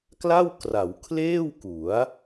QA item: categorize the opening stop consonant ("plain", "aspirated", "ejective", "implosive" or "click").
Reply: plain